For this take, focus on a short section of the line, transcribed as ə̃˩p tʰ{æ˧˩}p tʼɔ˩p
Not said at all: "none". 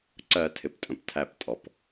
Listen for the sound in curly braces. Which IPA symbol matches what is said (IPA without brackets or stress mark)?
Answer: æ˧˩